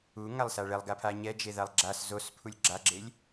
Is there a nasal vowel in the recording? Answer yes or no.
no